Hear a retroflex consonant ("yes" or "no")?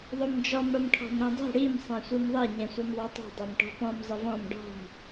yes